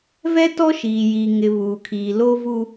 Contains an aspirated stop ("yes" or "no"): yes